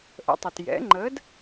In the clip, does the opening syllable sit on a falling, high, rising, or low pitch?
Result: rising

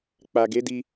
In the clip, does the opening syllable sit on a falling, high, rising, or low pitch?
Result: low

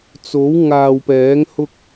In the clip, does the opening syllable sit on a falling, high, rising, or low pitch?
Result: rising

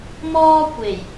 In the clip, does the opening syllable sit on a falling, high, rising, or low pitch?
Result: high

